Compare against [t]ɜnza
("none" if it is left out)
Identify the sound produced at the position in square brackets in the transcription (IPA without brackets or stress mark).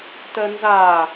t